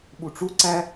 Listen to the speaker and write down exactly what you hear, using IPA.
ɓ u ʈ͡ʂ u ǀ æ

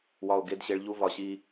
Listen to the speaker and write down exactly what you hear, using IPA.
w ɒ˨ o̯ ɡ e˨˦ d ɕ e˨ ɭ ʎ u˦ v ɒ˨ ɕ i˦

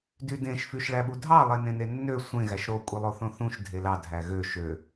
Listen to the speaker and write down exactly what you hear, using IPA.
d y d ẽ ʃ f y ʃ ɭ æ ɓ u dʱ ɑ lˠ e n ẽ n e nː ø sʷ ẽ ɣ æ ʃ ɾ o kʷʼ e lˠ o θ õ θ ũ ʃ dʱ e l ɑ dʱ æ ɣ ø ʃ ø

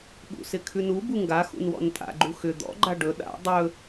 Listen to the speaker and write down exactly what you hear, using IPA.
ɠ ṵ s ɪ kʰ ʉ n u b u ŋ ɡ a x ṵ n w ɔ̰ n tʼ a̰ ɡ͡ǃ u x ʏ d̪ ɔ̰ ɡ͡ǃ a ɖ ɵ ɗ a̰ dˤ ɵ

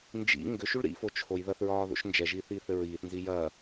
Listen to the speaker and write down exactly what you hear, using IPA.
n d͡ʒ ḭ ŋ ɡ ʏ ʃ u ɭ ɾ ḭ f o t͡ʃʰ o j ð ɐ θ ɹ ɒː ð o̰ ʃ n d͡ʒ ɛ ʒ iː θ iː θ ɘ ɹ iː θ n z i j ɐː

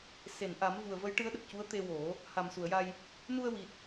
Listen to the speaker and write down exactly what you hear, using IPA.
s e˨˩˨ n ʔ a˨˩˦ m v u˨˩ ə̯ v ə˧˥ j ʈ ɨ˧˥ ə̯ ɗ ə˨˩ k̚ c u˧˥ ə̯ t̪ e˧ w o˨˩˦ | h a˨˩ m s u˨˩˨ ə̯ j a˧ j | n u˧ ə̯ w i˨˩ t̚

